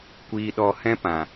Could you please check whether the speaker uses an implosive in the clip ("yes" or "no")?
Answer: yes